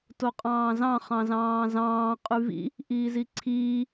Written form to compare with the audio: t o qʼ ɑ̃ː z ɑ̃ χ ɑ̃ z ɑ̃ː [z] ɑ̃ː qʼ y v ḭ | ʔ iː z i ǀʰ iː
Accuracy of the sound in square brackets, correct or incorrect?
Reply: correct